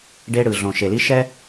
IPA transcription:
ɖ e˦ ɽ ɯ˨ ɮ õ˨ ʃ e˨ l i˦ ʃ ɛ˦

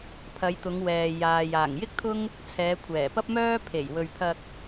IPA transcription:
pʰ ɐ˨˧ j t̪ ʊ˨˧ ŋ w ɛː˨ j aː˨ j aː˨˩ ŋ j ɪ˥ k̚ t̪ʰ ʊ˥ ŋ | t͡sʰ ɛː˨˧ kʷʰ ɛː˨˩ p ɐ˥ p̚ m œː˥ pʰ e˨˩ j w ɵ˨ ɥ pʰ ɐ˧ k̚

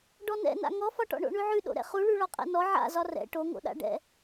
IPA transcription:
ɖ ɔ n ɛ̰ n a̰ ŋ ɔ f ɒ ʈ ɔ̰ ɳ o̰ ɳ ʉ ʕ ʉ ɗ o̰ ɾ ɛ̰ χ u ɭ ʉ ɭ ɒ qʼ ɛ̰ n ɔ ʕ a̰ z ɒ r ɛ̰ ʈ o ŋ o̰ ɗ a̰ ɖ ɛ̰

